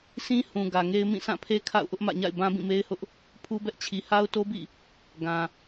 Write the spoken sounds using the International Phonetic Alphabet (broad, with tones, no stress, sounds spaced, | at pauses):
s ĩ˦ h ũ˨ ɡ ä˨ ŋ e˦ ɪ̯ m ĩ˦˨ s ã˦˨ pʰ e˦ kʰ a̰˦˨ ʊ̯ ʔ ʊ˦ ʔ m ä̰˦˨ ɲ a̰˦˨ ɪ̯ b ã˦ b ĩ˦˨ m e˦ ɪ̯ h ʊ˦ ʔ | pʰ u˦ b ɛ˦ ʔ t͡ɕʰ i˨ h a˦ ʊ̯ t o˦ b ḭ˦˨ | ɡ ã˨